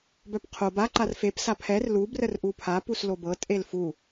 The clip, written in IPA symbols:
b œ p qʰ o b a ǃ a r f e p s a pʰ ɛ r l u b r ə r ʔ u pʰ a p u s l o b ɤ tʼ e l f u

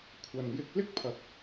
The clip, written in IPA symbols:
kʷʰ ɐ˨ n j ɪ˧ k̚ l ɪ˥ k̚ pʰ ɐ˨ k̚

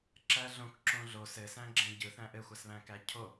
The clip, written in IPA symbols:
ǁ æ ɮ õ k ǁ õ ɮ o s ɘ s æ̃ ɡ͡ǁ ɛ̃ ɟ ɯ θ æ̃ ʔ ɘ xʷ a s β æ̃ k æ cʰ o

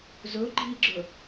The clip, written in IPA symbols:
z ɵ ɡ͡ǃ i ɡ͡ǁ ɵ

